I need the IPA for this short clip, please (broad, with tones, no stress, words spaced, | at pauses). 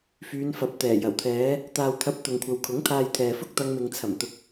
fyː˨˧nfɐ˨˥p̚t̪ɛː˨˩ jɐ˨˩wt̪ʰɛː˨˧ | t̪aː˨wt̪ʰɐ˨˥p̚ t̪ʊ˨ŋkʷʰɐ˨wkʰʊ˨˥ŋ t̪ʰaː˨j t̪ʰɛː˨fʊ˥k̚t̪ɐ˧ŋ mɪ˨ŋt͡sʰɐ˨˩mt̪ʊ˨k̚